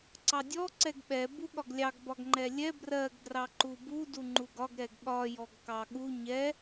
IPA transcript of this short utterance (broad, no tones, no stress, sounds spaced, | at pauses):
ǀ ɑ dʲ ɔ ǀ ɛ ɡ ɓ ɛ b u ɠ ɒ ɡ lʲ ɑ ɡ b ɒ ɡ ŋ͡ǃ ɛ lʲ ɛ b r ɜ ɡ d r ɑ ǃ u b u d u ŋ͡ǃ u ɡ ɒ ɡ ɾ ɛ ɡ ɠ ɒ j ɔ ɡ k ɑ ɠ u ɲ ɛ